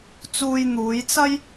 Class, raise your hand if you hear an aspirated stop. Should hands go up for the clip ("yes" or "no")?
no